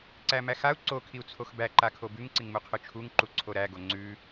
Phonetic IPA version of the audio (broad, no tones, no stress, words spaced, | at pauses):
ǀæmæxau̯ ǀokʰiu̯t͡sʰox bæǃakʰo bʉŋǀiŋmu qʰʉt͡ʃʰuŋǃu ǀʰoɾæɡo ŋ͡ǀʉ